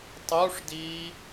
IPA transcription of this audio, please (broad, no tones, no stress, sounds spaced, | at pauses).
tˤ u ʂ d iː